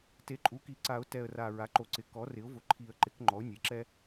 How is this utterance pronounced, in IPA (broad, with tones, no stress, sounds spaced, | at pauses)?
t e˩˥ ǃʼ u˩˥ k i˩˥ ǀ a˨˩˦ ʊ̯ t ɛ˨˩ ə̯ r a˨˩ ɹ a˩˥ ǃ o˨˩ ǀ ɪ˩˥ k ɔ˩˥ r ɪ˩˥ ʊ̯ v ʊ˨˩ ǃʰ i˨˩˦ ə̯ ǃ ɪ˩˥ k ŋ͡ǃ ɔ˩˥ ʊ̯ nʲ e˩˥ ǁ ɛ˥